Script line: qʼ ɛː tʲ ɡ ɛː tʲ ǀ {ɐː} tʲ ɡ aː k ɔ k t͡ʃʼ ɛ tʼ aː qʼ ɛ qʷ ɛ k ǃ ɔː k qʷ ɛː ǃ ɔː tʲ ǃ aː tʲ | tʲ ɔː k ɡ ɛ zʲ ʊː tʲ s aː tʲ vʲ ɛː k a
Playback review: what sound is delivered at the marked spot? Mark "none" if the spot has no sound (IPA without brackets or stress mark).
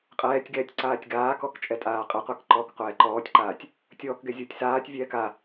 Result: aː